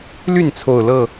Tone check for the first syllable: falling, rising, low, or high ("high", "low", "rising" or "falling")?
falling